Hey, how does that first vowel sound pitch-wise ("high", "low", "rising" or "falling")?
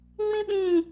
high